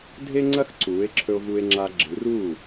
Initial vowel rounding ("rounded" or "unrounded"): unrounded